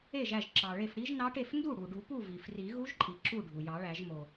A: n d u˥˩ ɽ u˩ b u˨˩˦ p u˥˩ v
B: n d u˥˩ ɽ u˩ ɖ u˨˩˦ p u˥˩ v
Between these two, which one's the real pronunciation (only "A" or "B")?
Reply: B